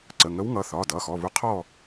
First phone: ǀ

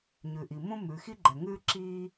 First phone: ɲ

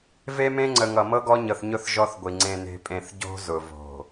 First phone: v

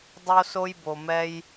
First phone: dˤ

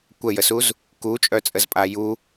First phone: kʷ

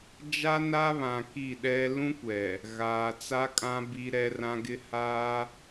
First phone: d͡ʒ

